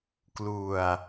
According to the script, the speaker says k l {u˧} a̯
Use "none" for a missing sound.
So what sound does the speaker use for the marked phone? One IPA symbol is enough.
u˧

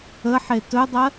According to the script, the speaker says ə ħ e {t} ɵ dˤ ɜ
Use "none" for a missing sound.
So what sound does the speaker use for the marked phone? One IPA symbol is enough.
t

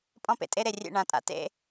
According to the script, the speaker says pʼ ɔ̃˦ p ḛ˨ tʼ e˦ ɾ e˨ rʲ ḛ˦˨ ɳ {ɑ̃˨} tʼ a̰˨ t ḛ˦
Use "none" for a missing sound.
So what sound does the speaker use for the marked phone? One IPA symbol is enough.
ã˨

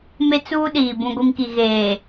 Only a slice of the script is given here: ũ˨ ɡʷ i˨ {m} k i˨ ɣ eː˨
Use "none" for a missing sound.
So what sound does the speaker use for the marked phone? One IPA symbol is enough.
m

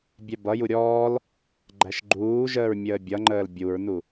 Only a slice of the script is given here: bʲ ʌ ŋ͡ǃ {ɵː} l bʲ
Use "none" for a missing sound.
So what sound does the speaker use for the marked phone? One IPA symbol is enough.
əː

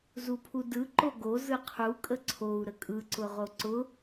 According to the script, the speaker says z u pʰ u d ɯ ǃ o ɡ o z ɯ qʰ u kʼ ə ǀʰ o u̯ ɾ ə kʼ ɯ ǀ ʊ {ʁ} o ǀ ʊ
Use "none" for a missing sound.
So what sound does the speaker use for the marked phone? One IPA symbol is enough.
ʁ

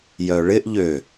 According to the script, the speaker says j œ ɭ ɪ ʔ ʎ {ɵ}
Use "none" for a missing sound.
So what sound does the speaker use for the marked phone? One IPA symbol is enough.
ø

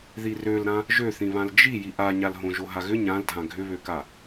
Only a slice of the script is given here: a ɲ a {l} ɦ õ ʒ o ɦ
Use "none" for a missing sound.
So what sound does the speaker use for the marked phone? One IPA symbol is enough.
l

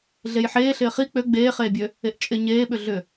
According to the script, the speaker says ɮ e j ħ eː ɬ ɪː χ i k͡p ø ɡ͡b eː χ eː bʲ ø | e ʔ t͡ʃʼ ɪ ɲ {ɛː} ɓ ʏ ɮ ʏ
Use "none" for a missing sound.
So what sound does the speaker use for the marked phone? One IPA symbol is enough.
eː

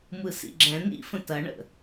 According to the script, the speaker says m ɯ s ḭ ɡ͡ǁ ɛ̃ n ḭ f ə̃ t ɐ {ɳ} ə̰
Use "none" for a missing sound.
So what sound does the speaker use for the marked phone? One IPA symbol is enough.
ɳ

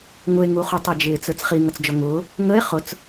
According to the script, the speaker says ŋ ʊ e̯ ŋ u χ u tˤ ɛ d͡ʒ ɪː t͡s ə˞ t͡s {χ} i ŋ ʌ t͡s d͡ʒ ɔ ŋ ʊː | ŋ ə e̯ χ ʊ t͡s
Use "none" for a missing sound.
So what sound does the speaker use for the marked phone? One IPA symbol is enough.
χ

